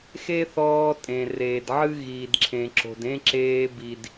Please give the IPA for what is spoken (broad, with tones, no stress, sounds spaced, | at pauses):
x e˦ θ ɔː˧ tʼ ẽ˨ r eː˨ d ʕ ɨ˦ ɣ iː˨ d ǁʰ ẽ˨ ǁ o̤˨ d ẽ˦ ǁ eː˧ b i˨ d